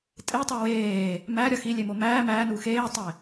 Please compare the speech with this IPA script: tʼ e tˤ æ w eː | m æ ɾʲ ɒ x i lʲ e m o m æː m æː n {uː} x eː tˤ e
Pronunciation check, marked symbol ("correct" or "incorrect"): correct